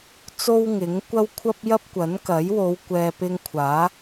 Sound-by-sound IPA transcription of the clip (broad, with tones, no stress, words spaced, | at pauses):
t͡so˥wŋɪ˨˥ŋkʷɐ˥w kʷʰɐ˥p̚jɐ˥p̚ kʷɐ˨˥nkɐ˨˥jwo˨˧w kʷɛː˨ pɪ˧ŋkʷʰaː˨˥